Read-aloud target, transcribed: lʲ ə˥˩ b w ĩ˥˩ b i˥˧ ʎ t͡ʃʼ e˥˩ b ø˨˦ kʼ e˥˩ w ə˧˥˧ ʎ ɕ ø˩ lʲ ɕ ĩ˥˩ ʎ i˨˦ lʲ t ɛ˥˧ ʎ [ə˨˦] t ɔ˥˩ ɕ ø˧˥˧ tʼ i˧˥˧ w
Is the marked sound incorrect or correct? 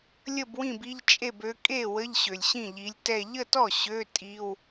incorrect